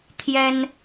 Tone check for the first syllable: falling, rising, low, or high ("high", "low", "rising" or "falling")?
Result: high